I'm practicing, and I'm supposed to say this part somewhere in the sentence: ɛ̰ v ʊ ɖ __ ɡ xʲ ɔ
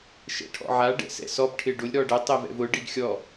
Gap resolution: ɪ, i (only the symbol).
i